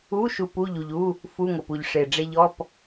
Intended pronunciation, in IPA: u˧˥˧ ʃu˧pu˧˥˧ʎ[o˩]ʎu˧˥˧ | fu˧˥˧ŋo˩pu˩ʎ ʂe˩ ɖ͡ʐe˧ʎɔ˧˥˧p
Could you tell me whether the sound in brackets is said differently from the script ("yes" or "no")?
yes